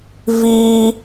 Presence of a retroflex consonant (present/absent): absent